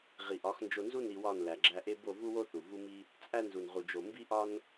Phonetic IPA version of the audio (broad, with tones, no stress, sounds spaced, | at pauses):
ʁ i˨ ʔ ɒ˨˦ x n d͡ʒ o˧ n z u˦ n i˧ w ɒ˦˨ n l æ˨ ɡ͡ǁ æ˧ ʔ e˦ b o˦˨ v u˦ w o˦ θ u˨ v u˦ m i˦ | t͡sʼ æ˦ n z u˨ n ʁ u˨ d͡ʒ o˨ m b i˦ ʔ ɒ˦ n